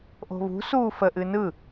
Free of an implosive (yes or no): yes